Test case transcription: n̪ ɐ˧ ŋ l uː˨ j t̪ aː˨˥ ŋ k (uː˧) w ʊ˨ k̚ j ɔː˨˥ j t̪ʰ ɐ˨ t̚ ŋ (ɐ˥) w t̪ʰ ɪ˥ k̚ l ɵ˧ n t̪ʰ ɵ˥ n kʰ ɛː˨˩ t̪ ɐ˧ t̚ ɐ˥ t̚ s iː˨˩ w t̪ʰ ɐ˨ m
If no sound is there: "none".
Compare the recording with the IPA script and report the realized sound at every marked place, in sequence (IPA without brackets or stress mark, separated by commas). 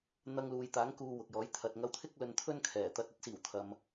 uː˧, ɐ˧